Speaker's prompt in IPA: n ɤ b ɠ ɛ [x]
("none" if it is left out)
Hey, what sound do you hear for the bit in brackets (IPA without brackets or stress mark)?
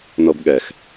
x